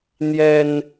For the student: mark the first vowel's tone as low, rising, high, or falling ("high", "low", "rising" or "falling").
high